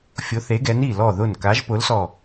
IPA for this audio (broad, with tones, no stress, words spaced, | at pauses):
fʲo˨˥θe˨˥ɡɛ˨˥n i˧˩lɔ˧˩ðʊ˧˩n ka˨˥ʒpʊ˨˥lsɔ˧˩